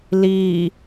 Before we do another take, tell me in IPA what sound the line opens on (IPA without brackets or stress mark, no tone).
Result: l